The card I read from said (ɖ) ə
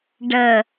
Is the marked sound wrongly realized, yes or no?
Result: no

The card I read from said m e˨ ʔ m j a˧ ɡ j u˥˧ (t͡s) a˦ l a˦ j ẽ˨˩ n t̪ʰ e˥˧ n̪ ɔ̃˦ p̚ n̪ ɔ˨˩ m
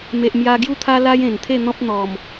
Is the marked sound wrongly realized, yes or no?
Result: yes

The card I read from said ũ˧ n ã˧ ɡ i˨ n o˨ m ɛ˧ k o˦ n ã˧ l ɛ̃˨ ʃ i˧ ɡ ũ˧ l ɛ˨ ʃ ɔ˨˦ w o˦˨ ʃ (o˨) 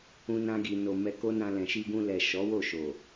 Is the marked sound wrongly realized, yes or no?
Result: no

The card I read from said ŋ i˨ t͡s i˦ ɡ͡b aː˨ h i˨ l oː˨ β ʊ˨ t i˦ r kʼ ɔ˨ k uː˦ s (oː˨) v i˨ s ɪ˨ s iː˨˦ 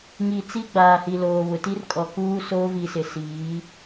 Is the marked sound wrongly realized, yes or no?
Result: yes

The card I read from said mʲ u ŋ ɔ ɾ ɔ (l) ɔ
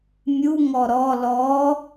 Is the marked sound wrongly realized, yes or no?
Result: no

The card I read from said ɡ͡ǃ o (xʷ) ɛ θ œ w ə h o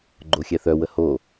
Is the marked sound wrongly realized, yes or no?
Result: yes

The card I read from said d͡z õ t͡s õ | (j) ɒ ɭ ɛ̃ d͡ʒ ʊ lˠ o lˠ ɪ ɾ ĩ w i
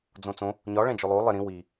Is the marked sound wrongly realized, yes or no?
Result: yes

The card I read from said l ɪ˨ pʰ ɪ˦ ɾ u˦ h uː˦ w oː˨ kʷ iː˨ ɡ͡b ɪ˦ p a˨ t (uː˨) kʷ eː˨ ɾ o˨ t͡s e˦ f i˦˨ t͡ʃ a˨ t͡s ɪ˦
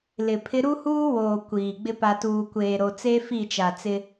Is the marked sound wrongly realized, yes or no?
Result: no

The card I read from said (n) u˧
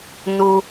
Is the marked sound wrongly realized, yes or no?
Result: no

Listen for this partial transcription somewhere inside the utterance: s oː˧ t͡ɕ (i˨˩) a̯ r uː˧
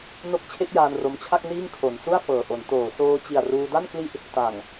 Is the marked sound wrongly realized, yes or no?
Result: no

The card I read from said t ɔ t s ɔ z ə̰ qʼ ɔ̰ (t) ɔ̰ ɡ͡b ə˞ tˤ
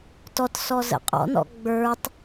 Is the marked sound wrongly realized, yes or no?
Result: yes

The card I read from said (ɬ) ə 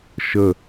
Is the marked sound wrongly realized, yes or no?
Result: yes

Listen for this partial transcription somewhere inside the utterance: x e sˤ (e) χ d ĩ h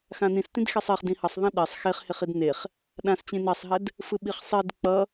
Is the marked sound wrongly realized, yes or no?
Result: no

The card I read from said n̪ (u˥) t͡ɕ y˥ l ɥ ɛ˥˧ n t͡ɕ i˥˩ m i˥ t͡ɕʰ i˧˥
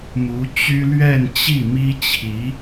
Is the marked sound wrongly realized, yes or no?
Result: yes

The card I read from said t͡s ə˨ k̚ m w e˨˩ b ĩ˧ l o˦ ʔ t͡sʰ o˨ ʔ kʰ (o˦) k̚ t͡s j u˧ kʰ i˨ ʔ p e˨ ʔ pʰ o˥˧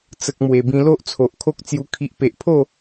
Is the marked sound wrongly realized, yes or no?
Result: no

